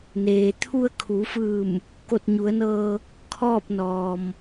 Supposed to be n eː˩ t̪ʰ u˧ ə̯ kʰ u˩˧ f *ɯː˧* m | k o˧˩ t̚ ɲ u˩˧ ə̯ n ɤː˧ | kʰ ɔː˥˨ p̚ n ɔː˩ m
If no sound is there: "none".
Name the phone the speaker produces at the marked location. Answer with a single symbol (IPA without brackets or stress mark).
ɯː˧˩